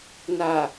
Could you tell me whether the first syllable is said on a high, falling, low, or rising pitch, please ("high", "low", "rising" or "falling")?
low